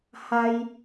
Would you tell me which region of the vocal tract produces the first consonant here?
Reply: throat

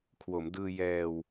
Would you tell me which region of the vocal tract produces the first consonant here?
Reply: velum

